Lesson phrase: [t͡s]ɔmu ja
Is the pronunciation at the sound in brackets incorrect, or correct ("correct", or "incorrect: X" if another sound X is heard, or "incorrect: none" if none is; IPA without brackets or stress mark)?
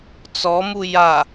correct